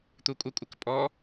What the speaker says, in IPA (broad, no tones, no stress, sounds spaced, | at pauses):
t̪ u kʷʼ ə kʷʼ ə k pʼ ɔ